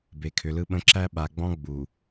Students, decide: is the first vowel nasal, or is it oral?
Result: oral